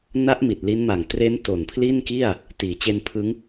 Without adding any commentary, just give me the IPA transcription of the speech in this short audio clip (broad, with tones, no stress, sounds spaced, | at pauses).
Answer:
n a˦˥ ʔ m i˨˩ t̚ l i˦˥ n m a˨˩ ŋ t r e˦˥ n t o˨˩ n pʰ l i˥˩ n k i˥˩ a̯ | t iː˩˦ t͡ɕ e˧ n pʰ ɯ˦˥ ŋ